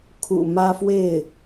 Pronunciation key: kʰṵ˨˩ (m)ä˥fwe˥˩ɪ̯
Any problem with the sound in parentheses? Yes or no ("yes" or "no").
no